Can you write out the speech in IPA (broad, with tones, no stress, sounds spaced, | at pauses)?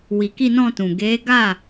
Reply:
w i˨ k i˧ n ɔ̃˧ t ũ˨ ɡ e˨˦ ɡ a˦˨